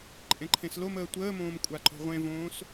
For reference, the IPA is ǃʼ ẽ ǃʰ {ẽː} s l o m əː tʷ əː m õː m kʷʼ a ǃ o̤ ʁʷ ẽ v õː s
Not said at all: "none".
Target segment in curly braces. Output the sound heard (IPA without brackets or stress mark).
ẽ